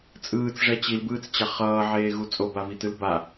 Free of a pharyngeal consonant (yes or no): no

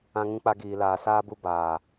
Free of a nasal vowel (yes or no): no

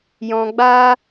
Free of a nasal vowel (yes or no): no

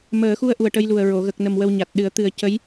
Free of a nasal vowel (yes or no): yes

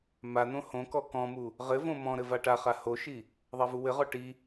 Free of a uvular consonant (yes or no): no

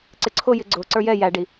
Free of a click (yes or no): no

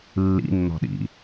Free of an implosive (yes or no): no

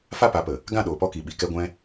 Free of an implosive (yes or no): no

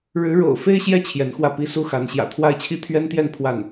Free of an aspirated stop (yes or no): no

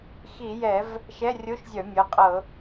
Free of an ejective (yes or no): no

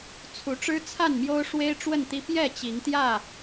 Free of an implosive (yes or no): yes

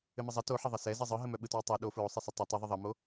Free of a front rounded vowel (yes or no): no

